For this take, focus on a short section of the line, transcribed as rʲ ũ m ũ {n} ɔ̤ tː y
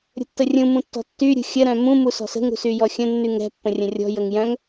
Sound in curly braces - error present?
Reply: yes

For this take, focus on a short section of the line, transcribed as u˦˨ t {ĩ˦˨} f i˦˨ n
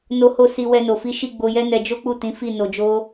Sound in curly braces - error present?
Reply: yes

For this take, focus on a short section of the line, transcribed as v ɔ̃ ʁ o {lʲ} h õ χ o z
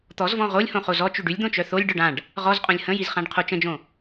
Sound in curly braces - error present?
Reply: no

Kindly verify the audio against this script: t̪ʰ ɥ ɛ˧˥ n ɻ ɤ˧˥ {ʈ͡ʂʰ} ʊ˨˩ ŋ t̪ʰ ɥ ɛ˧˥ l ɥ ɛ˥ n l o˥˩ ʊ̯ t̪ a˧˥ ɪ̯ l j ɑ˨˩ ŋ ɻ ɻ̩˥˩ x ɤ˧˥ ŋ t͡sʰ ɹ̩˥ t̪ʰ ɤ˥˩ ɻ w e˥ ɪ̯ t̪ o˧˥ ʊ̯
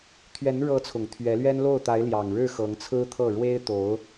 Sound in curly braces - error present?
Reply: yes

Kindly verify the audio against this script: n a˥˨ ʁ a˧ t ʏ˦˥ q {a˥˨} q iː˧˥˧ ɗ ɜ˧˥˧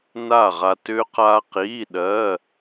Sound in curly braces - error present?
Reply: yes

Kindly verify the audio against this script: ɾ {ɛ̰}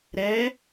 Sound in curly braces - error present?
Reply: yes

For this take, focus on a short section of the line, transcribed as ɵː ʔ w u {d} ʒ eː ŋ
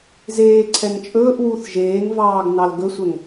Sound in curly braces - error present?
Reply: yes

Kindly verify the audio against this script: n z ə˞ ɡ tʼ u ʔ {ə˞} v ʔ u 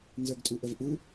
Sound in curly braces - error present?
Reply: yes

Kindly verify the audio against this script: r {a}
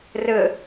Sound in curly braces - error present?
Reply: yes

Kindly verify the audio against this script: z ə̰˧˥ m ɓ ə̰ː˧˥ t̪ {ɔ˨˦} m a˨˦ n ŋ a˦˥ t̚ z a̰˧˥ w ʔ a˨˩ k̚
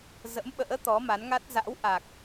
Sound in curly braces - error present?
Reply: no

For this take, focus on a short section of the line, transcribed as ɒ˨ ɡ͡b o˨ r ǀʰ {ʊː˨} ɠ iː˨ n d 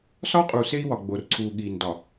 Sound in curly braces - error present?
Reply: yes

